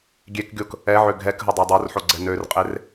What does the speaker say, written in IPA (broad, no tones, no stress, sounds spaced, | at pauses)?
ɡʲ e k ɡʲ o k | ɛ ʕ ø ɡʱ ɛ k ɦ ə dˤ ɛ dˤ o r ħ o ɡ͡ǀ ɛ n ø r qʼ e r